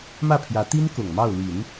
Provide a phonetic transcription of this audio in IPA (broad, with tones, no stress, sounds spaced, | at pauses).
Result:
m ä˥˩ pʰ j ä˧˥ t̪ i˥ n k ʊ˨˩ ŋ m ɑ˥˩ ʊ̯ l i˨˩˦ n